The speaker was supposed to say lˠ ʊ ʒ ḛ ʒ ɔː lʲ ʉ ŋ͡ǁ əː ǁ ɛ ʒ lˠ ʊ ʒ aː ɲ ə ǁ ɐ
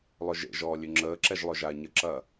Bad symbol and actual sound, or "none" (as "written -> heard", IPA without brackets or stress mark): none